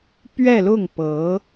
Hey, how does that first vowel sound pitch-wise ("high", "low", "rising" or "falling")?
falling